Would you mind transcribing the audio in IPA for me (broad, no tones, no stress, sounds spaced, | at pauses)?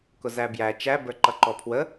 k ʊ z æ b j æ t͡ʃ æ b ə˞ ǃ ʌ ǃ ɔ pʰ w ə